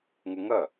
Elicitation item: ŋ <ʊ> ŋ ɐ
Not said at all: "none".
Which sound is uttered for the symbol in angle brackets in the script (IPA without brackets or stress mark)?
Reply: ʊ